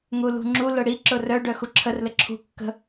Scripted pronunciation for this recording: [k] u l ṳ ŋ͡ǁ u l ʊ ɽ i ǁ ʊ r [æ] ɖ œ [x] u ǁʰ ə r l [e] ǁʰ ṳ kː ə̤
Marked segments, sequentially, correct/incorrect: incorrect: ŋ, incorrect: œ, correct, incorrect: ɘ

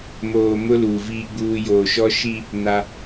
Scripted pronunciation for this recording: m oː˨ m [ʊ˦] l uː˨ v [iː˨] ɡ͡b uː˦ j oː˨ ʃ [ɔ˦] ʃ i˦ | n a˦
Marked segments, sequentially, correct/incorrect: correct, incorrect: iː˦, correct

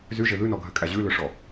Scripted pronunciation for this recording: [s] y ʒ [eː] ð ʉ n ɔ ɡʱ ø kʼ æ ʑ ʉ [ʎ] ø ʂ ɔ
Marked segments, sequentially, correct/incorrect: incorrect: z, incorrect: e, incorrect: l

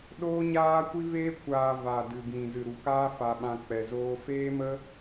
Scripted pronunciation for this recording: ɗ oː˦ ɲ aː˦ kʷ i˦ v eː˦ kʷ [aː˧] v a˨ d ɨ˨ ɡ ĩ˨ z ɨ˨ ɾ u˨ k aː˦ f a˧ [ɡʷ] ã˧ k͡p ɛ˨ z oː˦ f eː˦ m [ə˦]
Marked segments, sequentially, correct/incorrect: correct, incorrect: ɓ, correct

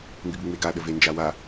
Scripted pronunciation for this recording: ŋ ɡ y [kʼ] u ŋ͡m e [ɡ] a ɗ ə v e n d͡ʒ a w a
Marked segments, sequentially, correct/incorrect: incorrect: ɡ, correct

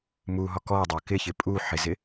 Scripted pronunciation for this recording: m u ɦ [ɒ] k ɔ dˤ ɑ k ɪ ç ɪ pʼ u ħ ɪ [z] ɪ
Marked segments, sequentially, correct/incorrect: correct, correct

